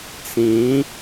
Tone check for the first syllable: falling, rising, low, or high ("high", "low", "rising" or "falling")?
rising